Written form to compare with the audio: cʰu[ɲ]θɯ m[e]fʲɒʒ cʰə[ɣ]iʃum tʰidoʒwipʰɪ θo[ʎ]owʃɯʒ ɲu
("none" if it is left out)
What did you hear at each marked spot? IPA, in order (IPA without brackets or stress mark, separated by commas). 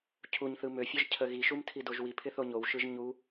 ɲ, ø, ɣ, ɲ